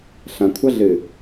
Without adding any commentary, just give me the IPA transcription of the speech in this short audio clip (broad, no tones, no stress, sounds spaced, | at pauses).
ɬ ɐ̃ kʷʰ ɐ ɮ ɨ